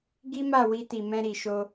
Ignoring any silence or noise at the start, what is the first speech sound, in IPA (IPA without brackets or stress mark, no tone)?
ɡ